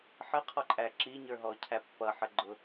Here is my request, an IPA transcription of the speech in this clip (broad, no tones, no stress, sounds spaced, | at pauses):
ħ ə qʰ ɔ ǃʼ æ ǁ i ɲ ə˞ ɦ ɔ cʰ æ pː ʌ ħ ə ɡ͡ǃ ʊ